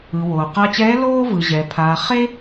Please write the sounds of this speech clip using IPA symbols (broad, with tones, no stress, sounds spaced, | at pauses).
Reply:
ɯ˩ w oː˩ q a˧ t͡ɕ ɛː˧˥ l oː˥ v ɯ˩ ʑ ɛ˩ pʰ aː˩ χ e˥